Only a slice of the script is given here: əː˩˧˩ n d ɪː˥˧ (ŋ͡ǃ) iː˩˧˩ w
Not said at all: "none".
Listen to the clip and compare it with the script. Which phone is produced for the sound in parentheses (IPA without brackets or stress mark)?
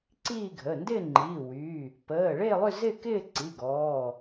ŋ͡ǃ